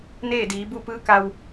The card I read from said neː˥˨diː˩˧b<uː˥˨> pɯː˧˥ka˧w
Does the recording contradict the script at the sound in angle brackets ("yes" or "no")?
yes